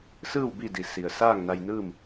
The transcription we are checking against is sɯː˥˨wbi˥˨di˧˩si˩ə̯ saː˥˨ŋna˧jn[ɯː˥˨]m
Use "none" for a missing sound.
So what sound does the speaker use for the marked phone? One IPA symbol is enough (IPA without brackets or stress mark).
ɯː˥˨